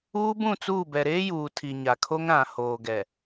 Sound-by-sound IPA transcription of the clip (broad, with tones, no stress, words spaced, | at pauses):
uː˦bũ˦˨t͡suː˦˨ bɛ˨ɾeː˦ juː˨tʰi˨ ɲa˨kʰo˦ŋ ɾã˨hoː˨ɡɛ˨